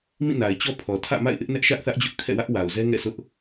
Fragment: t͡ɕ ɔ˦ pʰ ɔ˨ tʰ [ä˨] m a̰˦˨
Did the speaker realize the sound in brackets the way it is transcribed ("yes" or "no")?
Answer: no